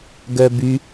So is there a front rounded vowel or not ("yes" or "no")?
yes